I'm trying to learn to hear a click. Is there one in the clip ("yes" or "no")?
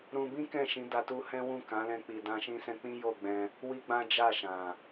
no